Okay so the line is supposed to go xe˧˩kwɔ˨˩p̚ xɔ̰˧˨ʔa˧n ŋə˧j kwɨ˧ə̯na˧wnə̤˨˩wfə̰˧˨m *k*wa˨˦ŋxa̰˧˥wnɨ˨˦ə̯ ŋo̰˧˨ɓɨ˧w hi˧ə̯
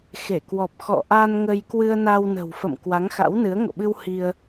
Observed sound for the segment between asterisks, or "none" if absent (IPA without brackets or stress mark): k